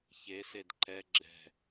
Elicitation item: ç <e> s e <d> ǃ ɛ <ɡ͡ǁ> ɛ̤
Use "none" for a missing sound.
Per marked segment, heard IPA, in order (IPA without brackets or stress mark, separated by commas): e, d, ɡ͡ǁ